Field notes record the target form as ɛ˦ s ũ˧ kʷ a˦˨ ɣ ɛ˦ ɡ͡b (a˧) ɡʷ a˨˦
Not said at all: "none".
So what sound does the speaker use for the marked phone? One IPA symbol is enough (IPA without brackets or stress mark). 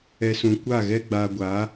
a˧